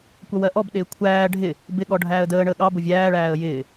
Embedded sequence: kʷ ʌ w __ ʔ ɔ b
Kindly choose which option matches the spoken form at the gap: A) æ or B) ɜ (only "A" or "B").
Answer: B